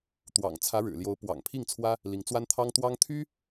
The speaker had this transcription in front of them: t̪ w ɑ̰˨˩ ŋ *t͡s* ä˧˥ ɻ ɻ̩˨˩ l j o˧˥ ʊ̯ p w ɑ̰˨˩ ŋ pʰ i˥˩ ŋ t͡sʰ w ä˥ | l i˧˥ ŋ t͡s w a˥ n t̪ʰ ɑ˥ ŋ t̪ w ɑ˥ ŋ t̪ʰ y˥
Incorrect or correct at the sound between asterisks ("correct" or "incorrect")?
incorrect